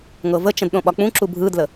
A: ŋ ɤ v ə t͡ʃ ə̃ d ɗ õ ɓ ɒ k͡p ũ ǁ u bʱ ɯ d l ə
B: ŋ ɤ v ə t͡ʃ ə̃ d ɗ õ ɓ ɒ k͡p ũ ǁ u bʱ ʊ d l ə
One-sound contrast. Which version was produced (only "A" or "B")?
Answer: A